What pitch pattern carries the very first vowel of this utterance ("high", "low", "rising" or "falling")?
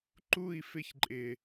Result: falling